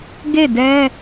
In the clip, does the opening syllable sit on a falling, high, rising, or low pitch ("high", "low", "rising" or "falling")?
falling